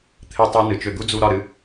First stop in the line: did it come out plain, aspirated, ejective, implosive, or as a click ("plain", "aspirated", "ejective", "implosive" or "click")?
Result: aspirated